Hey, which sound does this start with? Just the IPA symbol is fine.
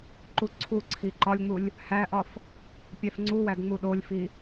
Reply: ǃ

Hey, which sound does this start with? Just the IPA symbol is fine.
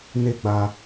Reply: n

